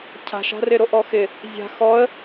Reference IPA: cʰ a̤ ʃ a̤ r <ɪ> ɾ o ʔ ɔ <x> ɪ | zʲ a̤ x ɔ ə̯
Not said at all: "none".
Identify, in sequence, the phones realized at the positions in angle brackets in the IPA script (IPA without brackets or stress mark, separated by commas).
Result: ɪ, x